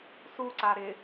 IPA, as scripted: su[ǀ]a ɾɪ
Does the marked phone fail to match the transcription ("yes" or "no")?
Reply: no